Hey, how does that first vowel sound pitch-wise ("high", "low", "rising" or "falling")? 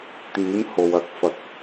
rising